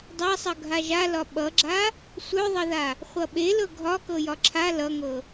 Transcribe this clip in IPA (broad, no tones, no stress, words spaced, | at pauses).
dˤasˤʌ ɡʱaʒalɒ ɓʌɡ͡ǁa | sʷœðˤʌða | χʷʌɓelɤ ɡʱɒkɤjɒ ǁʰa lʌŋɤ